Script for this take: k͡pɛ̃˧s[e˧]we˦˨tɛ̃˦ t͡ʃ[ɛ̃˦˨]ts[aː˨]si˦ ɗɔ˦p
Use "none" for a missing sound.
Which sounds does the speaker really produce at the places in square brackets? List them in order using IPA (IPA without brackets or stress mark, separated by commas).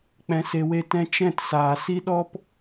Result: e˧, ɛ̃˦˨, aː˨